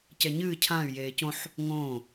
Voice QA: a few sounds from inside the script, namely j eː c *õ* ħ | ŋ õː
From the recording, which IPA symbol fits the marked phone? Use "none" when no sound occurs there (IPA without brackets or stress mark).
õ